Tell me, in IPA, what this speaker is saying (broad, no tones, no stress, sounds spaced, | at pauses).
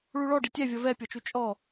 ɭ u ɭ ɔ ɖ i tʲ ɛ vʲ ʌ v ɛ pʲ ɔ t͡ʃ u t͡ʃʼ ɔ